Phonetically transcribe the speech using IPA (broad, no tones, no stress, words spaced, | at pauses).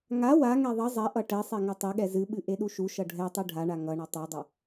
ŋa waŋɛ ðˤʌ zˤɛʔʌ ʈɛsˤe ŋʌtˤeɠɛ zɨɓɨ ʔeɗuʃuʃʌ ɖʱɛtˤɨ ɖʱaɳa ŋʌɳʌ tˤɛdˤʌ